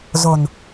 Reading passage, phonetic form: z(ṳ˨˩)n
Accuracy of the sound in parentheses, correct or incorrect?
incorrect